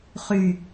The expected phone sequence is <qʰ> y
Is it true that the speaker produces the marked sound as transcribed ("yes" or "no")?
no